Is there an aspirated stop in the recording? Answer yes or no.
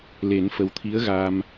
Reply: yes